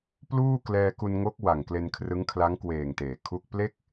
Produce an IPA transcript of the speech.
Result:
p l uː˥˩ k l ɛː˧ k u˧ n ŋ o˦˥ k̚ w a˨˩ ŋ k l e˧ n kʰ r ɯ˦˥ ŋ kʰ l a˦˥ ŋ k w eː˨˩ ŋ t eː˩˦ kʰ u˥˩ k̚ p l e˥˩ k̚

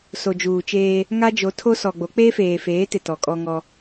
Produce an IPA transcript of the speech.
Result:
s o˨ d͡ʒ uː˨ t͡ʃ eː˦ | ŋ a˦ d͡ʒ o˨˦ tʰ o˦ s ɔ˨ ɡ͡b o˨˦ k͡p eː˦ f eː˨ f eː˨˦ t ɪ˨ t ɔ˨ kʼ ɔ˦ ŋ ɔ˦

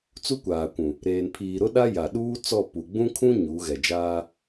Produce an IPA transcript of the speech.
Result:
t͡s u˦ kʷ aː˨ kʷ ũ˨ | ɾ eː˨ n pʰ iː˨ ɾ ʊ˦ ɗ a˦ j a˨ ɗ uː˦ t͡s ɔ˦˨ p u˨ ɡ͡b ũ˦ kʰ ũ˦ ɲ u˨˦ ɣ ɛ˨ d͡ʒ aː˦

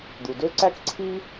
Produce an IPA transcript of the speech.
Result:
d̪ u˩ d ø˥ ǀ æ˥ k ǀʰ i˥

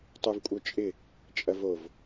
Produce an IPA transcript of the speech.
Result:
tˤ ø v kʷʼ œ t͡ʃʼ ɪ | t͡ʃʼ ɐ v o v

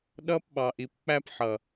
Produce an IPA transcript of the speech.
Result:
ɗ ʌː˦ p ɓ ɑ˨ ʔ i˨ p k͡p æ˦ p ħ ʌ˨

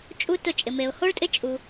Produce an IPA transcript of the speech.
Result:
t͡ʃʼ u˦ t ʊ˦˨ t͡ʃʼ ɪ˧ m e˧ ʊ̯ h o˦ ɭ tʼ ɪ˦ t͡ʃʼ u˧

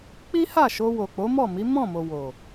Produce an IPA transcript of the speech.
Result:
k͡p i˦ h a˦˨ ʃ o˧ w o˨ k͡p o˨˦ m ɔ˦˨ m i˨˦ m ɔ̃˦˨ m o˨ w o˨

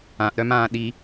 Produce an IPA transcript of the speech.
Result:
ã ʔ ɾ œ m ãː ɗ i

